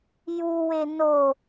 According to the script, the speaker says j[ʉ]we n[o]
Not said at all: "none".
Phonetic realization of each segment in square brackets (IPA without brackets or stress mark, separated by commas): u, o